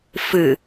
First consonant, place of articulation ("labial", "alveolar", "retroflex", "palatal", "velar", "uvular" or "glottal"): labial